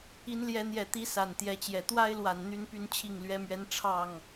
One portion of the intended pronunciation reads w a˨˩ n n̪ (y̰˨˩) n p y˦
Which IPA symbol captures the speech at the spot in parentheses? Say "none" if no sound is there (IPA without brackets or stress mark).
y˦